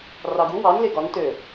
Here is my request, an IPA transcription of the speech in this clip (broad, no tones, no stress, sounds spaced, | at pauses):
r ɑ ɡ u w ɑ n l e ɡ ɒ n t ø